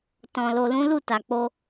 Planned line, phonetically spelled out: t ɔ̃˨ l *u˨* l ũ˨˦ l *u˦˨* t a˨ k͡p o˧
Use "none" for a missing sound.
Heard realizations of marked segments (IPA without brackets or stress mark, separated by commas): o˨, u˦˨